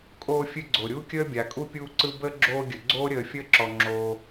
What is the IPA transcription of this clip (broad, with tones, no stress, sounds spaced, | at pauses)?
kʼ oː˦ fʲ ɨ˥ ɡ͡ǀ o˩ ɾʲ uː˥ kʲ əː˥ bʲ a˩ kʼ u˥ pʲ uː˦ ǀ ɯ˦ b əː˥ ɡ͡ǁ oː˦ ɡʲ ə˩ ɡ͡ǀ oː˥ ɾʲ əː˨ fʲ əː˥ ǁ ɔ˩ ŋ͡ǁ oː˩